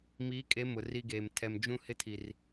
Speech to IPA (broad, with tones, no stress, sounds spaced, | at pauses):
m iː˨˦ kʼ e˨˦ m ʊ˨ r i˦ ɡ eː˨ m tʰ ɛ˨ m d͡ʒ ũ˦ h ɪ˦ tʰ i˨ r